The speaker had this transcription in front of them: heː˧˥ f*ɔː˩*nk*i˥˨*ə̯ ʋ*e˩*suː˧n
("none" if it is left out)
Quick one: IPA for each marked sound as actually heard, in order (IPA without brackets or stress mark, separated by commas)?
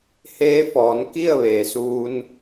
ɔː˩˧, i˥˨, eː˩